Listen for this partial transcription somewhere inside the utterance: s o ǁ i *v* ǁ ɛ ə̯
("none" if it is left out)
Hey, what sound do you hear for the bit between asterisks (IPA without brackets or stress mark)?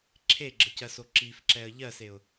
f